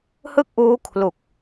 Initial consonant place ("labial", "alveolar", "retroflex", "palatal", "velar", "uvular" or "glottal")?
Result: glottal